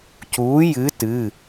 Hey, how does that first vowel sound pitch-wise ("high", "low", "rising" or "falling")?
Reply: rising